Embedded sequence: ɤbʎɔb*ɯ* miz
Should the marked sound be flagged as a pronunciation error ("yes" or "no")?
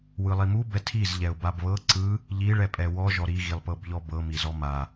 yes